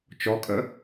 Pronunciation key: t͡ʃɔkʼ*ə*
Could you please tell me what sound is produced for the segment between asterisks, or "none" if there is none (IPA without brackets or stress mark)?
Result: ə